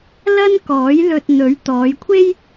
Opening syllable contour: high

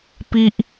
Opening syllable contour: high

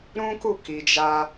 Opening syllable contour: high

